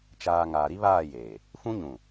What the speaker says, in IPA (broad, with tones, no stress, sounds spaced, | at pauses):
t͡ʃ aː˨ ŋ aː˨ ɾ i˦ β aː˦˨ j eː˨ | f ũ˦ ɲ ũ˨